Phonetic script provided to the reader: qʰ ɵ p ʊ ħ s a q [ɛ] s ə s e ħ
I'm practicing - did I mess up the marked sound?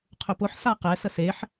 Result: no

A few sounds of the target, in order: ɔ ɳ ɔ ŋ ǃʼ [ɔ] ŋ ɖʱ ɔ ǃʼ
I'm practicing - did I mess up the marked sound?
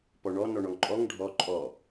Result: no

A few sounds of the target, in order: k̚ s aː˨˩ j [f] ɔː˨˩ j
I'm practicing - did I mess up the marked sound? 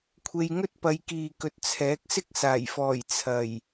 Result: no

